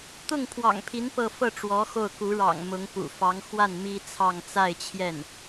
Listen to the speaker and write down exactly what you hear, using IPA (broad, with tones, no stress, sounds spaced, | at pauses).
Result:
t̪ ʊ˥˩ ŋ pʰ w ɑ̰˨˩ ŋ pʰ i˧˥ n p ɤ˥˧ f ɤ˥˩ ʈ͡ʂ w ɔ˧˥ x o˥˩ ʊ̯ k u˧˥ ɻ ɑ̰˨˩ ŋ m ʊ˧˥ ŋ p ṵ˨˩ f ɑ˧˥ ŋ x w a˥˩ n m i˥ t͡sʰ ɑ˥˧ ŋ t͡s a˥˧ ɪ̯ t͡ɕʰ j ɛ˥˩ n